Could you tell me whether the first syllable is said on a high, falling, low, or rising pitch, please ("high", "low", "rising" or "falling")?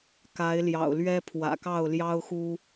rising